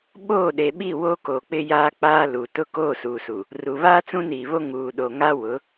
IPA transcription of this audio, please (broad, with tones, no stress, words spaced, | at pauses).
ɓoː˦˨ɗe˨ɓi˦˨ wo˦ko˨k͡pɪ˦jaː˦ k͡paː˦lu˨ tʊ˦koː˦˨suː˨su˨ | ru˨βaː˦ t͡sũ˦niː˨βo˦ ŋuː˨ɗo˨ŋa˦wʊ˨˦